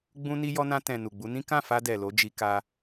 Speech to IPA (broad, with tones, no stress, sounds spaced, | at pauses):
ɡ͡b ũ˧ n i˧ j ɔ˧ n ã˧ t ɛ̃˨ n u˨ ɡ͡b u˨˦ n ĩ˦ k ã˦˨ f a˧ d ɛ˨ l o˨˦ d͡ʒ i˧ k a˦